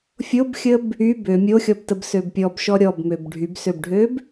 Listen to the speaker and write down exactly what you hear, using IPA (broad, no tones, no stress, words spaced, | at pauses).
fʲobxʲəb | y bø mʲoxʲɔbtəbsøb pʲɔbʃɔ ɾʲɔbmøb ɖʱybsøbɖʱøb